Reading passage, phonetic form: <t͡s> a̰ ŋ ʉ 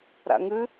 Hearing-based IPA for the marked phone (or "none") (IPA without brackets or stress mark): ɾ